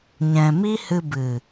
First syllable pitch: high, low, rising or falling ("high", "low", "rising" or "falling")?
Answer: low